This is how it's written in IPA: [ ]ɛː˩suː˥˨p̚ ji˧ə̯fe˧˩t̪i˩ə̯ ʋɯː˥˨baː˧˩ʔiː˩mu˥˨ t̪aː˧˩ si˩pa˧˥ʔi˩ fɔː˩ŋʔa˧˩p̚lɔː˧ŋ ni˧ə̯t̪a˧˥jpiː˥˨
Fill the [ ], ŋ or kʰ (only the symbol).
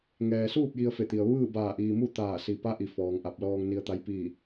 ŋ